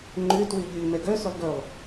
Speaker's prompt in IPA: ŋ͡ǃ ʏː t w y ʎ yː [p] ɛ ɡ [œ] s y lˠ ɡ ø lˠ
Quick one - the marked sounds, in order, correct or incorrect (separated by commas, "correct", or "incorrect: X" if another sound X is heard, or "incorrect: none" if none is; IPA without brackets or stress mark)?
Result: incorrect: m, correct